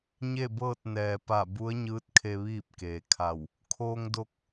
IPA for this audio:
ɲ e˥˨ b ɤː˥˨ t̚ n ɛː˩ p a˧˩ b u˧˥ ə̯ ɲ ɯː˧˥ t̚ kʰ e˧ ʋ iː˥˨ p̚ k eː˩ kʰ a˧˩ w | kʰ oː˧ ŋ d o˧ k̚

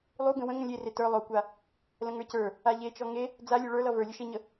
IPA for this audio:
lˠ u ɡ ə̃ w ə̃ ŋ ə̃ lʲ e r e t ə˞ lˠ o kʷ a | l ə̃ ŋ ə˞ c ə˞ | a ʎ e t͡ʃ ɔ ŋ e | d͡z a lʲ u ɭ ə˞ l ʌ v ə˞ lʲ ə ʃ e ɲ ə

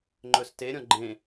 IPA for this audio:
ŋ͡ǃ ɵ s t e ɾʲ ɔ̃ ɡ͡ǃ ẽ

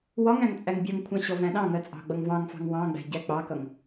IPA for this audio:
w ɒ ŋ æ̃ ŋ t͡sʼ æ ŋ bʲ ɜ ŋ kʷʰ ɑ̃ ɕ ɔ v æ̃ ɗ ɑ̃ ŋ ɜ t͡sʼ ɑ̤ ɡ͡b ʌ ŋ v ɑ̃ ŋ f ɑ̤ ŋ w ɑ̃ ɡ͡b æ̤ ɟ æ k͡p ɑ k ʌ ŋ

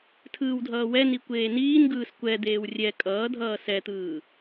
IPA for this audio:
tʰ ɯː w dʱ ʌː w ɛ n i kʷ eː n iː n ɡ ɯː s kʷ ɛ d̪ eː w rʲ ɛ kʼ ʌː dʱ ʌː s ɛ t̪ ɯː

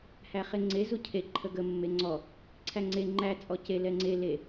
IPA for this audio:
h æ χ e ŋ͡ǀ e z u cʰ e ǃʰ ə ɡ ə mː e ŋ͡ǀ ɔ | ǀʰ æ ŋ͡ǀ e ŋ͡ǃ æ t͡sʼ ɔ c e l ɛ ŋ͡ǀ e l e

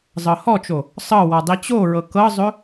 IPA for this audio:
zˤ ɤ h ɔ t͡ʃ o | sˤ ɤ w ɔ dˤ i t͡ɕ o ɹ ɤ k ɤ zˤ ɵ

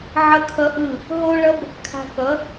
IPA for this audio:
ʕ ʌ˦ kʰ ʌ˦ ʔ ɯ˦˨ | ɦ o˦ ɭ ʌ˦ b | kʰ a̤˧ k ʌ˨˦

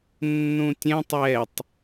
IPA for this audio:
nː ũ tʲ ɛ̃ tˤ ɛ tˤ

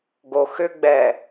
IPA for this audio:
ɡ o x ʏ ɡ͡b ɛ

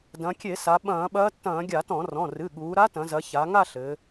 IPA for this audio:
d ɐ̃˩˧ kʲ e˧˩˧ s a˩˧ ɓ ɐ̃ː˧˩˧ ɓ ɐː˧˥ tː ɐ̃ː˧˩˧ ɡʲ a˧˩˧ t ɔ̃˧˩˧ r ɔ̃˩˧˩ r ɨ˩˧˩ ɠ uː˩˧ ɾ a˧˥ t ɐ̃˩˧ z ɐ˩˧ ç a˩˧ ŋ a˥˧ ɬ ɘ˩˧

